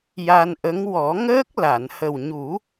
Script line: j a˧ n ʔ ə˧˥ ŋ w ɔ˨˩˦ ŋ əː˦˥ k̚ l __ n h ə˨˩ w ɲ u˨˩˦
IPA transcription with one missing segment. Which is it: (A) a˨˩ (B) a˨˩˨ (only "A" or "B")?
B